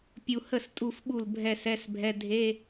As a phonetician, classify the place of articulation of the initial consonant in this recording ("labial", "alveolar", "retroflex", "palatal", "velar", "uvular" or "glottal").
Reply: labial